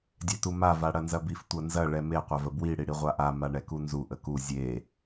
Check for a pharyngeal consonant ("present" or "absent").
absent